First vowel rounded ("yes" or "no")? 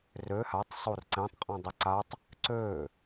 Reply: yes